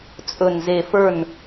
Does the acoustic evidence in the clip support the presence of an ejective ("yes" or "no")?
yes